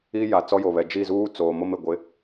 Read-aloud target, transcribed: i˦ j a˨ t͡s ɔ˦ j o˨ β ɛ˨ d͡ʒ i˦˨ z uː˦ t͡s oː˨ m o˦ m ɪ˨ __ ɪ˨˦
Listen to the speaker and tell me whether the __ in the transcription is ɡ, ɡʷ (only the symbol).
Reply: ɡʷ